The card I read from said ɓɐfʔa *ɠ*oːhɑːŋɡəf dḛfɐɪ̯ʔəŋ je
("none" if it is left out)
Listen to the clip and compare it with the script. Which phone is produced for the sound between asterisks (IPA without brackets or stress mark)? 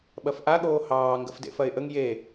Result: ɠ